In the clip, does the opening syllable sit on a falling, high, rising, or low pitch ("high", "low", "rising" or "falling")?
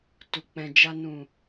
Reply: low